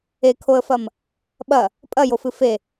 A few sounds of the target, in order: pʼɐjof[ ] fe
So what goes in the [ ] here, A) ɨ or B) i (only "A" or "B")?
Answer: A